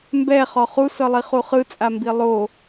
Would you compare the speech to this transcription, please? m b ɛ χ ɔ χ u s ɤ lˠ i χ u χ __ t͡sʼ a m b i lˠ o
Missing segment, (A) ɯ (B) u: A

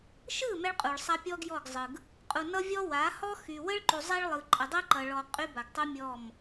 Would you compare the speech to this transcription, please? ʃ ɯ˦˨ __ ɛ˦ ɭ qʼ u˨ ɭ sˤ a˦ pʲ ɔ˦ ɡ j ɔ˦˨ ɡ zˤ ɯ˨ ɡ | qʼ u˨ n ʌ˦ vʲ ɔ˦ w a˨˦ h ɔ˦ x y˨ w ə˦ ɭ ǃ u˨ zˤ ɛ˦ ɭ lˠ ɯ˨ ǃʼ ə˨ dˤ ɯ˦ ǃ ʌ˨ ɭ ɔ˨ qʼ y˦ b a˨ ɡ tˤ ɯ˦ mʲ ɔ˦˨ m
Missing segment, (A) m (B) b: A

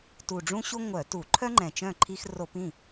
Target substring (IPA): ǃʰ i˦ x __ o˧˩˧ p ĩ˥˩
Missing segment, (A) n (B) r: B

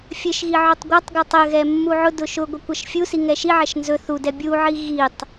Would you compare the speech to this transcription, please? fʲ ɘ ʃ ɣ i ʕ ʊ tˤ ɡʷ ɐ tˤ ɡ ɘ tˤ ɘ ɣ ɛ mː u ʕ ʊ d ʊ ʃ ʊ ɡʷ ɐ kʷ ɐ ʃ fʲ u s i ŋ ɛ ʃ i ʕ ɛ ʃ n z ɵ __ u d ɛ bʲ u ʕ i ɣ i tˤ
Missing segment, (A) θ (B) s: A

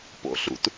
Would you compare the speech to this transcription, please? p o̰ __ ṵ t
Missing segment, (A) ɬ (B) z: A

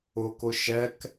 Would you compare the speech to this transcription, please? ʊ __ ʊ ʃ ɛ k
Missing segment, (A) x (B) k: B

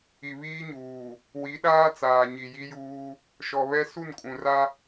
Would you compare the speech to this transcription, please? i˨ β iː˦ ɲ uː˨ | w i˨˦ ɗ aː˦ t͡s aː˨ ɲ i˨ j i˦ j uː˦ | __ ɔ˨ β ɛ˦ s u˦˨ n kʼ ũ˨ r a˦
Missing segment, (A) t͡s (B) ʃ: B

